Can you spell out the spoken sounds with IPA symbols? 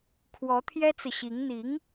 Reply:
kʰ w ɔ˧˥ t̪ʰ j ɛ˥ t͡s ɹ̩˨ ɕ i˧˥ ŋ n̪ i˧˥ ŋ

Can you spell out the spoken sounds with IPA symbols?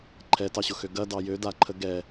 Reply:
ǃʰ ɛ t ɑ ɕ ʊ x ø ɡ ɐ d ɑ j ø d a ǃʰ ə ɡ ɛ

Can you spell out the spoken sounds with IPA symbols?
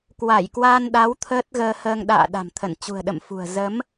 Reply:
k w a˧˩ j k w aː˧ n ɗ a˨˦ w t̪ʰ əː˦˥ t̚ ɣ əː˧ h əː˧ ŋ ɗ a̰ː˧˨ ɗ a̤˨˩ m t̪ʰ ə˧˩ n t͡ɕ ṳ˨˩ ə̯ ɗ ə̰˧˨ m f ṳ˨˩ ə̯ z ə˨˦ m

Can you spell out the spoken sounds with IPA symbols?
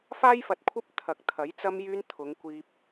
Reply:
f aː˥ j f ɐ˨ t̚ kʷʰ ɐ˥ p̚ t̪ʰ ɐ˨ k̚ t̪ʰ ɐ˨˥ j t͡s ɐ˧ m j yː˧ n t̪ʰ ʊ˨˧ ŋ kʷ iː˧ p̚

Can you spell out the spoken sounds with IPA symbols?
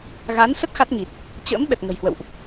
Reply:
ɣ aː˨˦ n s ə˦˥ t̚ x a˦˥ t̚ ŋ i˨˩ t̚ | t͡ɕ ə̰ː˧˥ m ɓ ɛ˨˩ p̚ ŋ ə̤˨˩ j h w ə̰˧˨ w ʔ

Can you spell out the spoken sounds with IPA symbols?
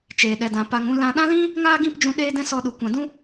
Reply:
t͡ʃ eː˨ ɗ ɛ˨ d ã˨ p a˨ ŋ ũ˧ l ã˧ ɗ ã˦ l ĩ˦ | ŋ aː˦ ɡ ĩ˦˨ p d͡ʒ ũ˧ ɗ e˦ d ɛ̃˦ s ɔ˧ ɗ u˨ kʷ ã˨ d ũ˦

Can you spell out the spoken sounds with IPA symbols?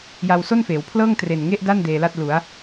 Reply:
j a˧ w s o˥˩ n f eː˩˦ w pʰ l ɤː˥˩ ŋ t r e˨˩ n ŋ e˥˩ ʔ d a˥˩ n d eː˧ l a˥˩ t̚ l u˩˦ a̯

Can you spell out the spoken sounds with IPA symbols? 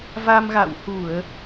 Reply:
v a˧ m ɣ a̰˧˨ w h u˧˩˨ ə̯

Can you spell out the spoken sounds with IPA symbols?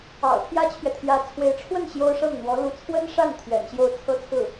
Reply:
ɑ̰˨˩ ʊ̯ t̪ʰ j ä˥ t͡ɕʰ ɥ ɛ˨ t̪ʰ j ä˧˥ t͡sʰ w e˧˥ ɪ̯ ʈ͡ʂʰ w ə˥˩ n ɕ j o˥ ʊ̯ ʂ ɤ˥˩ ŋ n̪ w ɔ˧˥ l u˧˥ t͡sʰ w ə˥ n ʂ a˥˩ n t̪ʰ ɥ ɛ̰˨˩ n ɕ j o˥˩ ʊ̯ t͡sʰ ɤ˥ t͡sʰ ɹ̩˥˩

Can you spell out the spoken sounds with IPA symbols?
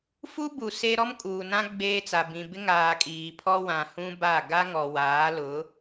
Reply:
f u˦ b u˨ s e˦ ɾ ɔ˦ m kʼ uː˨ n ã˦ ɡ͡b eː˦ t͡s a˨ b ĩ˨ b ɪ˦ ŋ aː˨ kʼ iː˨ pʰ ɔ˦ w ã˨ h ũ˦ b a˦˨ ɡ a˦ ŋ ɔ˨ w aː˨˦ l ʊ˨˦

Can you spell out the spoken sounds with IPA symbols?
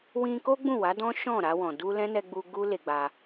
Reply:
w ĩ˧ k o˦ ɡ͡b ũ˦˨ w a˨˦ d ɔ̃˦ ʃ ɔ̃˦˨ ɾ a˧ w ɔ̃˨ d u˧ l ɛ̃˦ n ɛ˧ ɡ͡b u˧ ɡ u˦ l e˧ ɡ͡b a˧

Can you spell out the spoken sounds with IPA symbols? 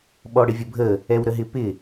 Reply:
ɓ ɔ ɽ ɪ vʲ ə bʱ ə | ɛ w ɾ ə ɦ ɪ p ɪ

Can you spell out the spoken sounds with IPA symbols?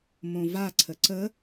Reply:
m õ v a ǀʰ ə ǀ ə

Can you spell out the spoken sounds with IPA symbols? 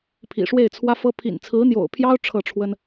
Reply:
pʰ ḭ˨˩ ʂ w e˥˩ ɪ̯ t͡sʰ w ä˥ f ɤ˥ pʰ ḭ˨˩ n t͡sʰ ɹ̩˧˥ n̪ j o̰˨˩ ʊ̯ pʰ j ɑ˥ ʊ̯ ʈ͡ʂʰ ɤ˥˩ ʈ͡ʂʰ w ə˥ n

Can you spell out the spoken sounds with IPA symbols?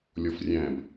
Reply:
lʲ ɔ f rʲ æ̃ b

